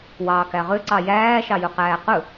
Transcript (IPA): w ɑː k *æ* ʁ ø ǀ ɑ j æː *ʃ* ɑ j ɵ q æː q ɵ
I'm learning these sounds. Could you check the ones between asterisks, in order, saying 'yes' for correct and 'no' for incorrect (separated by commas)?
yes, yes